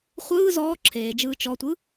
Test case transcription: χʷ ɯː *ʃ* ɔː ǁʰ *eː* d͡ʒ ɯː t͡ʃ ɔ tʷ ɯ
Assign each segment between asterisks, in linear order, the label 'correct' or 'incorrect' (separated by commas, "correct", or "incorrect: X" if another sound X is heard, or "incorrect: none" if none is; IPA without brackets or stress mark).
incorrect: z, correct